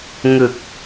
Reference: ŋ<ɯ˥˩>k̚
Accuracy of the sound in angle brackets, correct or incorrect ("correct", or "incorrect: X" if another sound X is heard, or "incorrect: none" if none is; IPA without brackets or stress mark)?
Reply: incorrect: ɯ˨˩